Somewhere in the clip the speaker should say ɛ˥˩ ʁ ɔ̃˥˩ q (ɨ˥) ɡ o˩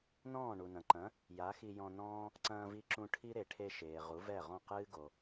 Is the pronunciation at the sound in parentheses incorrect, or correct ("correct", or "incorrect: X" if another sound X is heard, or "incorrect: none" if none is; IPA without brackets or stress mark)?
incorrect: ɨː˥